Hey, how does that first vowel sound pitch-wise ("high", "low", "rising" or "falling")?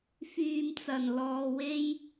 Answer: low